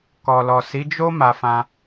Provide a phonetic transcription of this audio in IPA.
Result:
kɔ˨lɔ˨si˨˦d͡ʒo˦ ma˧fã˧

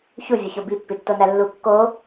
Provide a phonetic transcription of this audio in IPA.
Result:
çuvʲoço bipːitːonæ lːu kːo

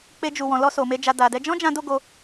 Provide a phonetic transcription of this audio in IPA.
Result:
k͡pe˧d͡ʒu˨wɔ̃˨lɔ˧ so˨me˧ d͡ʒa˨ da˨dɛ˧ d͡ʒɔ̃˦d͡ʒã˧ do˦ɡo˧

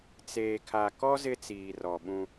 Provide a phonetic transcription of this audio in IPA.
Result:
t͡seː˨kʰa˨kɔ˦ zɪ˦t͡siː˨rɔ˨ɓũ˦

